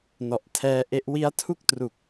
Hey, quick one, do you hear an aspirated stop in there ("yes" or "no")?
yes